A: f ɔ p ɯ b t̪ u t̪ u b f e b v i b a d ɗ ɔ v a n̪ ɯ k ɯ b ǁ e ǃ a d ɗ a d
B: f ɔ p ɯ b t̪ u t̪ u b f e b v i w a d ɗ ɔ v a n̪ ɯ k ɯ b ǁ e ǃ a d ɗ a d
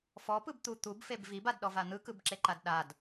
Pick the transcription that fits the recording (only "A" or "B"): A